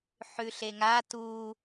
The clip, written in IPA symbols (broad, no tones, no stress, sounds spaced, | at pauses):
ħ ʉ ɬ e ŋ a t u